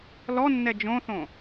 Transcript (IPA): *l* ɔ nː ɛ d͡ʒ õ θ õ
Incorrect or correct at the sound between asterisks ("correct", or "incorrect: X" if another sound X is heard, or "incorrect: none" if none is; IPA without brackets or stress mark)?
correct